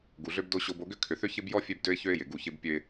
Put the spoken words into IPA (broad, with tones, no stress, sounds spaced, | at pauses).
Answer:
ɡ u˨ ɮ ø˦ b d o˦ ɕ o˦ b o˦ ɡ ʏ˦ kʰ ʏ˨ θ ʏ˦ ç ɪ˦ b j ɔ˦ fʲ ø˦ b d ø˦ ɪ̯ ç ø˦ ɪ̯ j ɪ˨ ɡ u˦˨ ç ɪ˦ b pʲ ø˦ ɪ̯